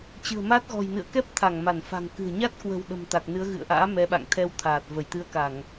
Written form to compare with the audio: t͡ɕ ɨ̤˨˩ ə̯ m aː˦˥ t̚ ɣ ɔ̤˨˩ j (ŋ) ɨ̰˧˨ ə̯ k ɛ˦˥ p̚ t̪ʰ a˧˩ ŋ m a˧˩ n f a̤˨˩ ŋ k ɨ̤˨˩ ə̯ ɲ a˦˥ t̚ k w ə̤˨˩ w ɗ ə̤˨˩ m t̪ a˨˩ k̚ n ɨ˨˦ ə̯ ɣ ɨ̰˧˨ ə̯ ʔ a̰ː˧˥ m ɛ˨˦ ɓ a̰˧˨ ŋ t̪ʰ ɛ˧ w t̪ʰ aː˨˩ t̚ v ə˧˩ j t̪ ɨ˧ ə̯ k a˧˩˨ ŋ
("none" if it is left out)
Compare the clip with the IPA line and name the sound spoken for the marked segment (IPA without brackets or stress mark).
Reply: n